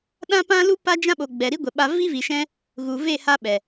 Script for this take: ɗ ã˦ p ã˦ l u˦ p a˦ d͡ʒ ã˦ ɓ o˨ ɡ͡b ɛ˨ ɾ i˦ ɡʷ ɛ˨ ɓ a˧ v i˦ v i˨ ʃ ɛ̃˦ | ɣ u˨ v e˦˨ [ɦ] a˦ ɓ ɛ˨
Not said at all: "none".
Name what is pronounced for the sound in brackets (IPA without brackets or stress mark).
h